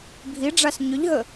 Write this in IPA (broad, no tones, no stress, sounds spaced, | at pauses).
bʱ i ɖ͡ʐ a s ɲ ʏ ʎ ɦ ə